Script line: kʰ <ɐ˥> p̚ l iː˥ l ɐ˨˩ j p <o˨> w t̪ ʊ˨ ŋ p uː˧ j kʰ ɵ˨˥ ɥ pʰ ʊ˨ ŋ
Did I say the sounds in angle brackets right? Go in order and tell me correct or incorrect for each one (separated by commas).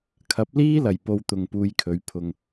incorrect, incorrect